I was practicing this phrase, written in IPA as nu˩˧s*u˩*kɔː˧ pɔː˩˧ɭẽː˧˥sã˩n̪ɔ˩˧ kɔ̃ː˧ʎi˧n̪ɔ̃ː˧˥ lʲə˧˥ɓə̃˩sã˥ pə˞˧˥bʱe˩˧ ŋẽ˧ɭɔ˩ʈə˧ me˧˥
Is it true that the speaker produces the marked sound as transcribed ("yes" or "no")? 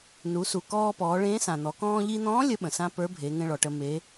yes